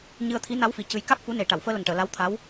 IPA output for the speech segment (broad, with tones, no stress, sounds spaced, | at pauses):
ɲ ɨ˧ ə̯ t̪ʰ i˧˥ n a˧˥ w f i˨˩˨ c ɨ˧ j k a˦˥ k̚ f u˧˥ n e˨˩ ʈ a˨˩˨ w f əː˧ l ə˨˩ ŋ ʈ əː˨˩˨ l a˧˥ w t̪ʰ a˧˥ w